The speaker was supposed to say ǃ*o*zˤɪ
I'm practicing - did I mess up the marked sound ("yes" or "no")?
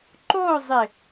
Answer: no